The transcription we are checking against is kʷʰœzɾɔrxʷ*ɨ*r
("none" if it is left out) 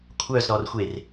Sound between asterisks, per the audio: e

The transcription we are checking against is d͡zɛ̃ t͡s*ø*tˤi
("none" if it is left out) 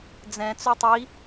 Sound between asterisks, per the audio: ø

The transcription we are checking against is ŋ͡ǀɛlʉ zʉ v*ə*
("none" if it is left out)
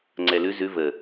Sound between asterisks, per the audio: ə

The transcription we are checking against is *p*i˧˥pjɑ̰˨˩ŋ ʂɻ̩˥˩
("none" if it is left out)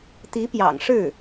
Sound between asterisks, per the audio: t̪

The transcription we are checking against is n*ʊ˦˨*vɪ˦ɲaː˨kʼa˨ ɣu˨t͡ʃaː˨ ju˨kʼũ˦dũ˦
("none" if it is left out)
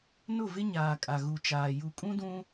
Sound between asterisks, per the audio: ʊ˦˨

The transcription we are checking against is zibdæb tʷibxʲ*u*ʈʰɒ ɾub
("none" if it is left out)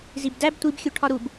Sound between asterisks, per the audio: u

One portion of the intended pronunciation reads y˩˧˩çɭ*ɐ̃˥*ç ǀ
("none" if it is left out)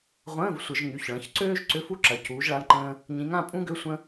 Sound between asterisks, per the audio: ɐ̃˩˧˩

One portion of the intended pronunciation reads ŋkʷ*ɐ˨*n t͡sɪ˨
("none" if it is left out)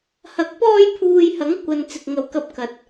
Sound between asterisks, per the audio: ɐ˨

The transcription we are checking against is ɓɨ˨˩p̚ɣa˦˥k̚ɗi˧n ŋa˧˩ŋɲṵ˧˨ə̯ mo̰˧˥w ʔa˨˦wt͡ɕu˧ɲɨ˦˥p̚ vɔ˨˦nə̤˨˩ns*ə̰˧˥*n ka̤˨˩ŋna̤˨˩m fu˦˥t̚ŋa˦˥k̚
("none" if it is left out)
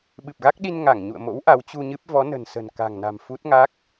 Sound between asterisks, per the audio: ə̤˨˩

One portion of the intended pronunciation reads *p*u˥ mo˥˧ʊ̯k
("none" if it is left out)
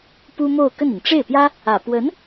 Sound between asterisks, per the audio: p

